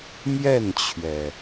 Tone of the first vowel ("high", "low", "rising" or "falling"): falling